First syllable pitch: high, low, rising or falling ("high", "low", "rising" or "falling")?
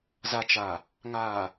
low